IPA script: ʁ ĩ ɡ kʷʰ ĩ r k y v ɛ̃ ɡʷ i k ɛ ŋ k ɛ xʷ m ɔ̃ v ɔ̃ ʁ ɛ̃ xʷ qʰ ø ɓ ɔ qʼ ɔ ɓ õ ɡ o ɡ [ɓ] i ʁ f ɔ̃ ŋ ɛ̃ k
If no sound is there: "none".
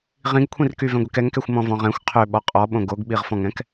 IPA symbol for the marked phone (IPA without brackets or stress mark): ɓ